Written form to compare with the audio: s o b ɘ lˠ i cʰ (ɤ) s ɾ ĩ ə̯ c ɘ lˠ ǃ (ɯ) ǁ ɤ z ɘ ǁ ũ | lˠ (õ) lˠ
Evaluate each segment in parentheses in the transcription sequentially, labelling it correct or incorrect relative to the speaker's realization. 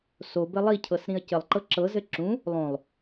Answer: correct, incorrect: ɤ, correct

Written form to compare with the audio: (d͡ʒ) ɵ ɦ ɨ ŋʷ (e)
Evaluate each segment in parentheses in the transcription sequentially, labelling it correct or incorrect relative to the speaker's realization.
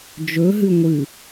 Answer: correct, incorrect: ɨ

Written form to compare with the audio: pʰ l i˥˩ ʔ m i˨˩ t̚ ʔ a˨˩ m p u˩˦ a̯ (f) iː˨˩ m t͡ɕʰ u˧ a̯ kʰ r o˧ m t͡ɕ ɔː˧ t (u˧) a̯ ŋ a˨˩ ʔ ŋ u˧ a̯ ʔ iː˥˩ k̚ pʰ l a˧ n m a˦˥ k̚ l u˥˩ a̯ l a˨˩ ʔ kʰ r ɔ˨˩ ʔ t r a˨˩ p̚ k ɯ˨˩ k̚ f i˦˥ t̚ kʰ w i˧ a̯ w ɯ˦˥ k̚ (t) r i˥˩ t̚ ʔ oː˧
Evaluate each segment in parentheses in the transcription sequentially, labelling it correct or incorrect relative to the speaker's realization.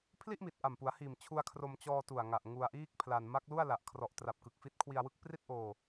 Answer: incorrect: h, incorrect: u˨˩, incorrect: p

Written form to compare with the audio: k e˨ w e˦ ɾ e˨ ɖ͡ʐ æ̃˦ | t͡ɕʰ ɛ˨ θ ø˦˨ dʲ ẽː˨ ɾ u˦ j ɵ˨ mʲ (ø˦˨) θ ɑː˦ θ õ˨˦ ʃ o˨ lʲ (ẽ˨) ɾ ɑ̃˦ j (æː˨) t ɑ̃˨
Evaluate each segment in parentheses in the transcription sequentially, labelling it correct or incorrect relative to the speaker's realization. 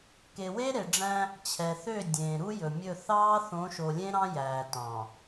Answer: incorrect: ɵ˦˨, incorrect: ẽ˦, correct

